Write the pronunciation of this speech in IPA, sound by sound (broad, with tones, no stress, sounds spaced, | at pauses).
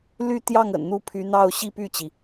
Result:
l y˥˧ t̪ j ɑ˥˩ ŋ ə̰˨˩ n n̪ u˥˩ pʰ y˧˥ n̪ ɑ˥˧ ʊ̯ ɕ i˥˧ p y˥˩ t͡ɕ i˩